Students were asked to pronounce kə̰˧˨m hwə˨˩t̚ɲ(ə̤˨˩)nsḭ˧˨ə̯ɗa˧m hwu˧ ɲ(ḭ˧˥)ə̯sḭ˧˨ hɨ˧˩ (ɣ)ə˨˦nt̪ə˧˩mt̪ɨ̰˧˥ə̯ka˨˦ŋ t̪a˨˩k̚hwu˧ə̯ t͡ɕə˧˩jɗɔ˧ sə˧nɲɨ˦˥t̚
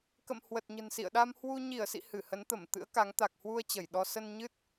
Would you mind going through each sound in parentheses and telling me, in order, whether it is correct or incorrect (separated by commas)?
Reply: correct, incorrect, incorrect